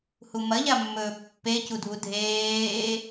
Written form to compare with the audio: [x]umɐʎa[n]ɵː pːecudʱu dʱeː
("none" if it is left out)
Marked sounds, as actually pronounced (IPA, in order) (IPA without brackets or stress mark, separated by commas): h, mː